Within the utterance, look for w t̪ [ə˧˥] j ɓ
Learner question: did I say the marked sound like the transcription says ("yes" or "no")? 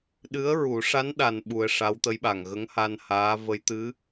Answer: yes